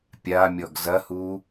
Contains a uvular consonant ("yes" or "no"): no